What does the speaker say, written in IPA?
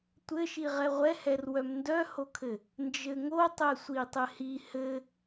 tʷ ɘ ʃ i ʁ ɛ ʁʷ ɛ h ɛ r w œ m n d œ h o kʰ ɘ | n d͡ʒ ɘ ŋ o tˤ ɛ sʷ i tˤ ɘ h i h ɘ

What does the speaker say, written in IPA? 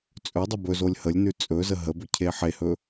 t͡sʼ ɵ dˤ ə b ɵ z o lʲ h ə lʲ n ʉ t͡sʼ ɵ z ə ɦ ə b ɵ cʰ e ħ e h ɵ

